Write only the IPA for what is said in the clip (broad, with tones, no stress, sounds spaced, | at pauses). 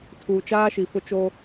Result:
tʰ uː˨ t͡ʃ aː˦ ʃ i˨ f ʊ˦ t͡ʃ oː˦